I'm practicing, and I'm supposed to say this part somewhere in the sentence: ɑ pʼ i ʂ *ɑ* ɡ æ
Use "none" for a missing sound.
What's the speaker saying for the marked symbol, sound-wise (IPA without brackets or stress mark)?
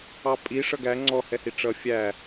ʌ